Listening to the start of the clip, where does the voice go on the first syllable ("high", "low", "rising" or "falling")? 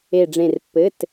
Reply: falling